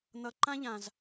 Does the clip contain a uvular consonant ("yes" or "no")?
no